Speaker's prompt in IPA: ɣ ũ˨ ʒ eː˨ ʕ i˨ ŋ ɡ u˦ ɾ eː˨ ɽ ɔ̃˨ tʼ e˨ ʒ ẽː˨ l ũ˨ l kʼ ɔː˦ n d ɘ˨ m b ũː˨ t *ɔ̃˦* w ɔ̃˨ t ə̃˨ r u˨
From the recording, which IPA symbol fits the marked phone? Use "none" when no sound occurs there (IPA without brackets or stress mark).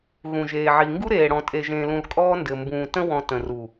ə̃˦